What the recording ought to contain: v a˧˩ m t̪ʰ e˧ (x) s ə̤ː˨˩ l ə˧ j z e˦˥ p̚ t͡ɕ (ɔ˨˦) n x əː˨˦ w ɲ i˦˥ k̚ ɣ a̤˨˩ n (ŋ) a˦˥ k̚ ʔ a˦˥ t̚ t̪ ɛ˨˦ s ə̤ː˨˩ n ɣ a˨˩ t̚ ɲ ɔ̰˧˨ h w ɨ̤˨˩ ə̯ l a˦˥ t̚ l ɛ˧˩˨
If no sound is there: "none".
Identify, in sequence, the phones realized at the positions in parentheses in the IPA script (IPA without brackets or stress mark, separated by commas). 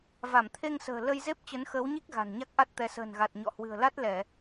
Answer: ŋ, ə˨˦, ɲ